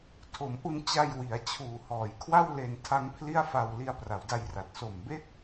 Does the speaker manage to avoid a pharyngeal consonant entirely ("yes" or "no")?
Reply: yes